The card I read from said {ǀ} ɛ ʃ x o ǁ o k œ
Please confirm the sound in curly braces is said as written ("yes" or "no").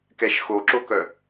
no